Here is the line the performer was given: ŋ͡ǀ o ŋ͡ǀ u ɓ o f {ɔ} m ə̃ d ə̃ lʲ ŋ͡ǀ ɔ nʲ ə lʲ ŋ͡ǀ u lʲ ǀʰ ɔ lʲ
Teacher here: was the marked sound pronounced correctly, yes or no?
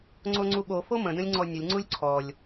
no